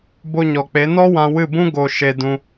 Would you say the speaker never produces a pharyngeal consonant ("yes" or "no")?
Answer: yes